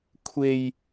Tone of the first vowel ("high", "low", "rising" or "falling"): low